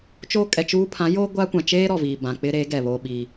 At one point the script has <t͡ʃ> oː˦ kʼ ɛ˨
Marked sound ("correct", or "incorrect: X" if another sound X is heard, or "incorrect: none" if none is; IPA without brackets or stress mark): correct